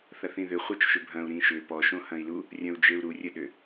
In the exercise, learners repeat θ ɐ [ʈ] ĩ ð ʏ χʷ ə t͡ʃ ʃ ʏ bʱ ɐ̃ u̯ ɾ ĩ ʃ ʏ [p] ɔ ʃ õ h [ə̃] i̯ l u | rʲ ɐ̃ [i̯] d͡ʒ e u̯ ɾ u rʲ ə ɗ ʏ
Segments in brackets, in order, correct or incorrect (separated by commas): incorrect, correct, incorrect, incorrect